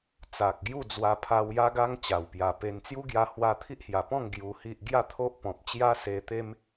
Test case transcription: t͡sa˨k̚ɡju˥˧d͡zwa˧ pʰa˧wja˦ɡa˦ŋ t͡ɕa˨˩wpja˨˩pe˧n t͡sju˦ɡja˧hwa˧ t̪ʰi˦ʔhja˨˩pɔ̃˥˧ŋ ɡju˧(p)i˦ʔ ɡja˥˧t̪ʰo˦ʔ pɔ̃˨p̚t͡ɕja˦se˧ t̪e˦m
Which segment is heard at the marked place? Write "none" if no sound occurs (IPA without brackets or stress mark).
h